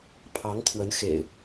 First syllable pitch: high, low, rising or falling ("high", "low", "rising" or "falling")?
rising